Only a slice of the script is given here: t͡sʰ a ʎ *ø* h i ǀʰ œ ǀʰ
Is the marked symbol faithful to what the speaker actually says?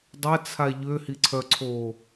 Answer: yes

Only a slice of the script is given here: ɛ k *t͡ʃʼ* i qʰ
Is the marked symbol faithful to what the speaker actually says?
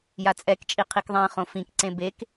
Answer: yes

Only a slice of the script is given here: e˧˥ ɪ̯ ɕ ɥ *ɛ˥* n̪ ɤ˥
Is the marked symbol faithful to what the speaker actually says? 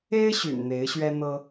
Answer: yes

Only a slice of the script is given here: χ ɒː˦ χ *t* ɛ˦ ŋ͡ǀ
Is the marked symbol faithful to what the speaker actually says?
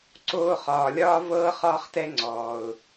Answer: yes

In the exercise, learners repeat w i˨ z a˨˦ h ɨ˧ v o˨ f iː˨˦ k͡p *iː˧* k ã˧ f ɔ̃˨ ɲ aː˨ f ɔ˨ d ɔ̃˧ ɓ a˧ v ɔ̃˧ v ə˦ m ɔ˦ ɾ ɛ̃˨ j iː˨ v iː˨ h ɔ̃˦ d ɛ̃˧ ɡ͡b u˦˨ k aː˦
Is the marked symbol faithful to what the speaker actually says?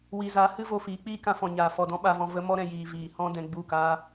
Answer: no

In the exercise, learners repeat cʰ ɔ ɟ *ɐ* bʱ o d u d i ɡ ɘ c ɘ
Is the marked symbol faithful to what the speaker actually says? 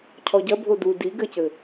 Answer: yes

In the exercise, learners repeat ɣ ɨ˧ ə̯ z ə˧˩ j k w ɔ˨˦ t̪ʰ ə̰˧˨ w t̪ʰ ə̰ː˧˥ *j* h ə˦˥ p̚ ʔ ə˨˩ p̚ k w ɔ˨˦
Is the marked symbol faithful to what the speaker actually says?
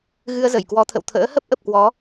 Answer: no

